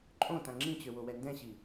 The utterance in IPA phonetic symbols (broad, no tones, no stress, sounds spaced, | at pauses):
ǃʼ õ t ã ŋ͡ǁ ĩ t͡ɕ ø w o w ɛ n d ɛ̃ ɕ i